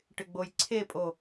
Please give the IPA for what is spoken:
ʈɪɡ͡bojǀʰepʼo

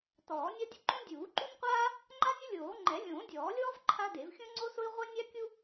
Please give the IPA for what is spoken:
tɔː˨˩˦nʲa˥ dʲʊ˥ǃõ˥ dʲuː˨˩˦ǃu˥nʲqʷaː˥ | ŋ͡ǃa˥nʲʊ˥lʲoː˨˩˦ ŋ͡ǃɛ˨˩˦lʲõː˨˩˦dʲɔː˨˩˦lʲɔː˥v ǃʰa˥de˨˩˦v xʲõ˥ŋ͡ǀo˥sʊ˥i̯ ʁʷɛ˥nʲa˥kʲu˥

